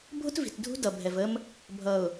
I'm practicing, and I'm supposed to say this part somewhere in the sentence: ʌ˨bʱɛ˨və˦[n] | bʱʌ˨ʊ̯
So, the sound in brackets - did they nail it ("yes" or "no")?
no